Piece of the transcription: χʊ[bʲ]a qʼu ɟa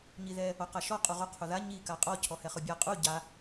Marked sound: correct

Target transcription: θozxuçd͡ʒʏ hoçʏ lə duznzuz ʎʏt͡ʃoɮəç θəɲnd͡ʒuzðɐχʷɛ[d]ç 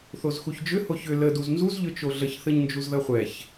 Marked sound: incorrect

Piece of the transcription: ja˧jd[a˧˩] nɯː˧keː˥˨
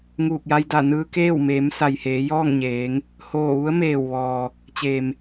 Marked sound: correct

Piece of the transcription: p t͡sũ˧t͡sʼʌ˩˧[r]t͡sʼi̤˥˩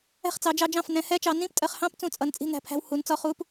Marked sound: incorrect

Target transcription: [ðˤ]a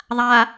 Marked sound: correct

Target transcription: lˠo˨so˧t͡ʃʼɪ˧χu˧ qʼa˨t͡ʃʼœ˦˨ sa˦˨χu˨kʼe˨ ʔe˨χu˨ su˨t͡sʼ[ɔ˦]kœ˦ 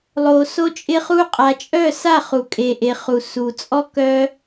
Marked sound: correct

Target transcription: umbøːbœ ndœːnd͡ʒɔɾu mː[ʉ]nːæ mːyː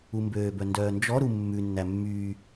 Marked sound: correct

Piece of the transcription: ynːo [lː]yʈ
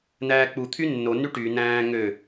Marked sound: incorrect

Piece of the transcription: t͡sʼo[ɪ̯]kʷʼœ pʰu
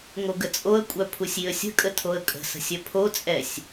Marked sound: incorrect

